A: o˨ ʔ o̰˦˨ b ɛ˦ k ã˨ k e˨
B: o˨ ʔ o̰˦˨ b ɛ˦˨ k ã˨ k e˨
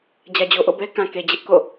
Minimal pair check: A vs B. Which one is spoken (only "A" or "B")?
A